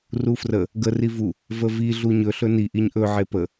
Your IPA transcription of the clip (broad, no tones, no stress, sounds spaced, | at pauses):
r u f r ə | ɡ ə r i v u | v ə v i ɮ u ɲ ɵ ɬ ɵ n i ʔ i ɲ ʔ ɵ ʕ e p ə